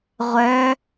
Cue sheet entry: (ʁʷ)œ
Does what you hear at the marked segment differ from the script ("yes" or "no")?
no